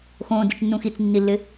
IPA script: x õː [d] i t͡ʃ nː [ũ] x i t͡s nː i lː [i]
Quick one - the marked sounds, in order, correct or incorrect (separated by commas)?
correct, correct, incorrect